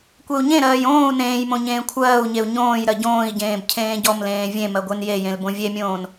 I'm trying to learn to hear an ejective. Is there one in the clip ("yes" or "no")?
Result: no